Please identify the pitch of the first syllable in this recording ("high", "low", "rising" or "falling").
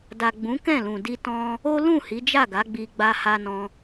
low